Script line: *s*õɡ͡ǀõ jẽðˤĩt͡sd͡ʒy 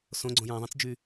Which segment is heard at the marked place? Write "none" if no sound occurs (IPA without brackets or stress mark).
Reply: s